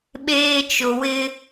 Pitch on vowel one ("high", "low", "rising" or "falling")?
high